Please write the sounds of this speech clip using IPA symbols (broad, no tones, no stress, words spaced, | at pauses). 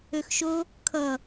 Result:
øxʃo | kʰʌ